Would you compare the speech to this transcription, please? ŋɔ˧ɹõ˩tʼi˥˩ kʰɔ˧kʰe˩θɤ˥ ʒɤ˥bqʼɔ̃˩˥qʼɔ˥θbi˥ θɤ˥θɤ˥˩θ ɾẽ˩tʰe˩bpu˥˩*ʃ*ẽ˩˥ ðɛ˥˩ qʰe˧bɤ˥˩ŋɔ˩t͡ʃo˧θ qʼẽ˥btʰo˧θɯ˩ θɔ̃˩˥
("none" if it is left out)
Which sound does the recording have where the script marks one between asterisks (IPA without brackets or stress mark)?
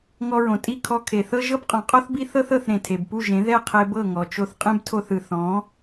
ʒ